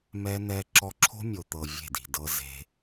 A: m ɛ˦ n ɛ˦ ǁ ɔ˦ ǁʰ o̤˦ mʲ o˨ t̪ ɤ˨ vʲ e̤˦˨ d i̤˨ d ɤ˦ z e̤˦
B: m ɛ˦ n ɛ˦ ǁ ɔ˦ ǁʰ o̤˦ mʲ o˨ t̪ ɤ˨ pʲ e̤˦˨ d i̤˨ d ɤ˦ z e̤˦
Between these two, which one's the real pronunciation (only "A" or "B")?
A